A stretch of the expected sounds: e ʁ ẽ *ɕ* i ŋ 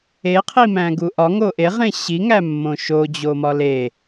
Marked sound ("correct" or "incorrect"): correct